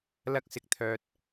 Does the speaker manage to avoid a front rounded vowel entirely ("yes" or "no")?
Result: no